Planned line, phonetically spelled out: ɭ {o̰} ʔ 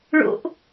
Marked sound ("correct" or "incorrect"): correct